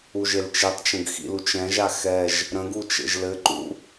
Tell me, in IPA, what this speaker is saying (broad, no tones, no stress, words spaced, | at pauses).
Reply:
uʒelt͡ʃitˤt͡ʃə̃ɡ xḭlut͡ʃɛ̃ʒa xɛʒ | ɾə̃ɡu t͡ʃḛʒlɘǃṵ